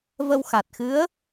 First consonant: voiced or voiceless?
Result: voiced